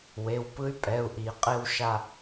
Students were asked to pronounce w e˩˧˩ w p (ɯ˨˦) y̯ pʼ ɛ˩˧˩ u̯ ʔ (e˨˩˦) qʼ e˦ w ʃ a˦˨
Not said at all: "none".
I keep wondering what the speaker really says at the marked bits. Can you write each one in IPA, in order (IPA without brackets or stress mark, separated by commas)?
ɯ˦, i˨˩˦